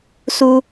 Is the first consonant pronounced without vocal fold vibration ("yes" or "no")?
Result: yes